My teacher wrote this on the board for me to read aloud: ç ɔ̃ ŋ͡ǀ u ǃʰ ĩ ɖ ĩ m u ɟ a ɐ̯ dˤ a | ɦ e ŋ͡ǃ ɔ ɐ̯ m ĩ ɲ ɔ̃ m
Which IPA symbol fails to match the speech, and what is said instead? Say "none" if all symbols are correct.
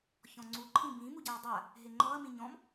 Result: ɖ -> b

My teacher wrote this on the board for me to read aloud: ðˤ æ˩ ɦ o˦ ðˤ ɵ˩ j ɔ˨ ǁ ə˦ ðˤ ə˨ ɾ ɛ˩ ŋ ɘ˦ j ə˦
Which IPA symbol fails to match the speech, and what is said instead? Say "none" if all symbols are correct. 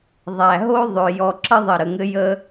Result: ɛ˩ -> ə˩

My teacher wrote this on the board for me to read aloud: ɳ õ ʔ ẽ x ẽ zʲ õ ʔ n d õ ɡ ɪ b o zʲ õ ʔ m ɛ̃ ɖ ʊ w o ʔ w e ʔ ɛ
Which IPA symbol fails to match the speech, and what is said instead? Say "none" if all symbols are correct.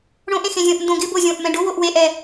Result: none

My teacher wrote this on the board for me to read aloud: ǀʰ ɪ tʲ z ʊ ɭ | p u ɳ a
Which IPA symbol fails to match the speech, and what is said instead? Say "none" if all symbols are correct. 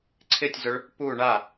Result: none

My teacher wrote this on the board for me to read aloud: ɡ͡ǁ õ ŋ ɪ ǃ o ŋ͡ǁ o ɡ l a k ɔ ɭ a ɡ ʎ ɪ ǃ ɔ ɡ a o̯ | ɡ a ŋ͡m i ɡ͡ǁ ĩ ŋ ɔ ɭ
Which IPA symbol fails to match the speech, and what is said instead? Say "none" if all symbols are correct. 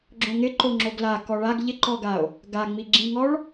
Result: none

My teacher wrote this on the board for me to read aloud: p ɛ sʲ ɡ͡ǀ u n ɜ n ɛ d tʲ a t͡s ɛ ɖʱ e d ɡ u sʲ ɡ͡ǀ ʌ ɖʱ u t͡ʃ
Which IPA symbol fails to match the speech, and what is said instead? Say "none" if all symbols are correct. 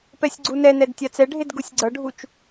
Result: ɜ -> ɛ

